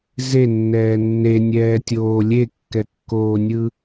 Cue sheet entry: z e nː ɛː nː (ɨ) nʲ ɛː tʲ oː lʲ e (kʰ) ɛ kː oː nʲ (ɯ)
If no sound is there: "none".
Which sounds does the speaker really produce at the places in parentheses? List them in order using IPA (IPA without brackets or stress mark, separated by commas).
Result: e, kː, ɯ